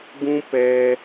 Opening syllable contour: high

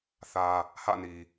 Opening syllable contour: low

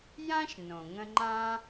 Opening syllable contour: high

